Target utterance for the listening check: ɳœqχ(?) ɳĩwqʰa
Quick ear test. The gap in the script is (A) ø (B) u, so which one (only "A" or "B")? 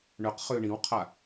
A